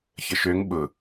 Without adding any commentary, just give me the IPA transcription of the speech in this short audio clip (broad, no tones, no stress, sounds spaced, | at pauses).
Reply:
ç ə ʃ ø ŋ ɓ ʊ